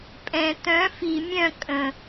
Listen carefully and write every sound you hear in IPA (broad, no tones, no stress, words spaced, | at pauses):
pʼɛ̃ t̪œ̃ fi mʲœ̃ kʼə̃